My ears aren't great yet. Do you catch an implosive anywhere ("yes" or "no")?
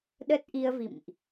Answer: yes